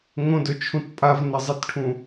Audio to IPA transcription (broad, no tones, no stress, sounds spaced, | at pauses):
ŋ õ d ɵ t͡ʃʰ ũ t pʼ a v n ɐ zˤ e t ʈʰ ũ